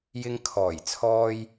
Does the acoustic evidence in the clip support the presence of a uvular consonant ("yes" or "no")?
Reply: no